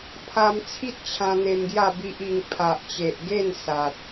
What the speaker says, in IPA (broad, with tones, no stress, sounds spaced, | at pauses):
pʰ a˧ m t͡sʰ i˦ t̚ t͡ɕʰ ã˧ n̪ e˧ m ɡ j a˥˧ b i˦ ʔ i˧ ŋ pʰ a˨ ʔ t͡ɕ e˨ ʔ ɡ e˥˧ n s a˨ t̚